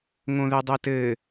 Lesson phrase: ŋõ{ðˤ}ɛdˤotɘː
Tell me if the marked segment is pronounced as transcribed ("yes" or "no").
no